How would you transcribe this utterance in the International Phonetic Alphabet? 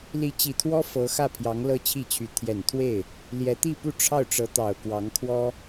li˧˥t͡ɕi˨˩t̪ʰwɔ˥ fɤ˧˥xä˥˩pʰjɑ˧˥ŋ lɤ˥t͡ɕʰi˥˩t͡ɕʰy˧˥ t̪ʰjɛ˨˩nt̪ʰwe˥˩ɪ̯ | ljɛ˧˥t̪i˥˧pu˥˧ ʈ͡ʂʰɑ˥˩ʊ̯ʈ͡ʂɤ˧˥t̪ɑ˨˩ʊ̯ kwɑ˧˥ŋkʰwɔ˥

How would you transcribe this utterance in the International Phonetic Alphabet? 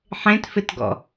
ħẽtfɪtɡɔ̰

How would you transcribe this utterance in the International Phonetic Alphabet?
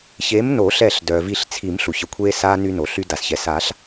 çe˨˥mno˨˩˦ ɬɛ˧˩ɬ dœ˩ vi˧˩ɬt͡sʰi˨˩˦m ɬu˩çə˧kʷʰeː˧saː˧ ny˧no˩ɬy˧ da˩sçɛ˩saː˨˩˦ɬ

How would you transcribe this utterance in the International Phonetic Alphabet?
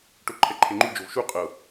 ʈoǃʰɛǃʰeŋ͡ǃu d͡ʒovʃu qʼɤ

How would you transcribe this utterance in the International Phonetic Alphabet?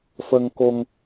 fə˧ŋko˧ŋ

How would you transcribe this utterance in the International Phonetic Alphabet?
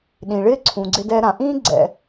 ɗĩ˩ɭɪː˥ ǀʰũ˩ɡ͡ǀɪ˧dɛ˧ ɾã˩ʔĩː˥ɡ͡ǀɛ̰˩

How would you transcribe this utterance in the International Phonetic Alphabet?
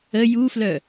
ə juflœ

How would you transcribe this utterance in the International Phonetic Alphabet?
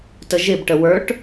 təʒɪb ʈəwə˞ʈ

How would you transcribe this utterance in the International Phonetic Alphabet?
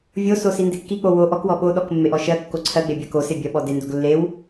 vʲoso sindekːik͡po wo ʔɔkwɔ ɓoɗɔk mːeʔɔʃɜkːo ǀʰɜɡ͡be bʲɜkose bʲɜɓɔdendoɡ lːew

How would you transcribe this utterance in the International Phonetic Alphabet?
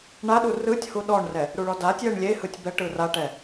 ɳaɗu rɯtʲhu ɗɔɳrɛ | ɾuɭɔdatʲjɛɳ lʲehɯtʲ bɛʈɯ raʈɛ

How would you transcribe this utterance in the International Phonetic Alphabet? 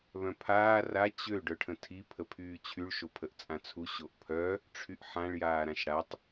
βœ̃pʰaː ra t͡ɕø ɖœʈʰə̃tʰi pʰəpʰyːt͡ɕʰyɭ ʃopʰəʔt͡sʼãt͡sʰu ɕoʔpʰœ | ʈ͡ʂʰyʔħãɭ jaːɾãʃɽatˤ

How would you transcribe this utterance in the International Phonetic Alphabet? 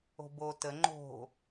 o̤bo tə ŋ͡ǃo̤

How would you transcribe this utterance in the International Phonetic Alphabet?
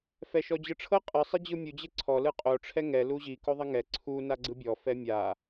fɛʃɔd͡ʑɯʈ͡ʂʰɤ qʼɯ sˤid͡ʑɯmʲu d͡ʑeǀʰɔ lɯqʼo ʈ͡ʂʰɛŋɛ luʑi koðˤiŋɛ ǀʰu naɡ͡ǀɯbʲɔ fɛmʲa

